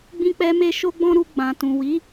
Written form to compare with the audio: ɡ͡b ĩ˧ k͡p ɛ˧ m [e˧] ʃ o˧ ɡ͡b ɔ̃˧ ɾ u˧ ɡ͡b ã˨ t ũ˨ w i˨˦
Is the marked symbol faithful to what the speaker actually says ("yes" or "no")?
yes